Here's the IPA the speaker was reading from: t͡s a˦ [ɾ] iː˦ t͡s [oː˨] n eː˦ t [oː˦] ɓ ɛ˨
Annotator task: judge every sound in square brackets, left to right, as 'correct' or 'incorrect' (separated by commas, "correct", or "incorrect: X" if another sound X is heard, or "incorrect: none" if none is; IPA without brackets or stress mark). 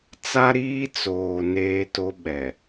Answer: correct, correct, incorrect: o˦